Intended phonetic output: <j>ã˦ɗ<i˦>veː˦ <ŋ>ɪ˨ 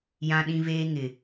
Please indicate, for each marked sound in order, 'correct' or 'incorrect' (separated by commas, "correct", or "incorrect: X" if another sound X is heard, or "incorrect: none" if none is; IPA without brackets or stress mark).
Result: correct, incorrect: ĩ˦, correct